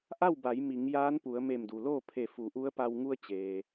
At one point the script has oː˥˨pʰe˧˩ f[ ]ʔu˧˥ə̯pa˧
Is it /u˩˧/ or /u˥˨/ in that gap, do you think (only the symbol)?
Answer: u˩˧